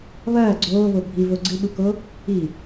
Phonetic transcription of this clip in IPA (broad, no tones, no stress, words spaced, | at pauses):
βɐː ɡ͡ǀoːβo bʱivo ɡ͡ǀɨɓuko | i